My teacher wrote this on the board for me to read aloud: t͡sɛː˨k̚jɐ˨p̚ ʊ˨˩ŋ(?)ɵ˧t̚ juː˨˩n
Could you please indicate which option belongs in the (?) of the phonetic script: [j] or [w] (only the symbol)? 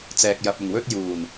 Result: w